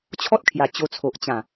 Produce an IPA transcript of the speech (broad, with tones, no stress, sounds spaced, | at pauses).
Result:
t͡ɕʰ ɔ˦ t̚ kʰ j a˨˩ t͡ɕ o˧ t͡sʰ o˨ ʔ t͡ɕ ã˨˩